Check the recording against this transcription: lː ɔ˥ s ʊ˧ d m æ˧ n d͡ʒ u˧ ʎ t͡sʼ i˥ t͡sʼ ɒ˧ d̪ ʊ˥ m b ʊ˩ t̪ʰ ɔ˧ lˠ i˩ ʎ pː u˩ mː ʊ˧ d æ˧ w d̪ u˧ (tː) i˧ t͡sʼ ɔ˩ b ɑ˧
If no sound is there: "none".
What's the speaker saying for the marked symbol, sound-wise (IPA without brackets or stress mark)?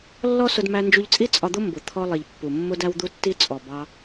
tː